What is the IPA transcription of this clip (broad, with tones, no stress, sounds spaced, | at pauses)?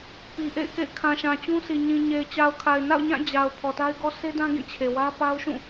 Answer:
p i˨ ʔ ḛ˦˨ ɪ̯ k ḛ˦˨ ɪ̯ kʰ ã˨ ʃ ã˨ t͡ɕ ũ˦ sʰ i˨ ɲ ĩ˨ ɲ e˨ ɪ̯ t͡ɕ a˨ ʊ̯ kʰ a˨ ɪ̯ n a̰˦˨ ʊ̯ ɲ ã˦˨ d͡ʑ a˨ ʊ̯ pʰ ɔ˨ t a˦ ɪ̯ ɡ ɔ˦ s e˦ d ã˦ ɡ ĩ˦˨ t͡ɕʰ e˨ w ä˦ p a˦ ʊ̯ ʃ ũ˦˨